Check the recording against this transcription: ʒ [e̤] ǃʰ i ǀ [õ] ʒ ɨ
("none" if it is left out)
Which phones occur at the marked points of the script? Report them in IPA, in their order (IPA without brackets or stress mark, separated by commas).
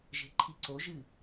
e̤, o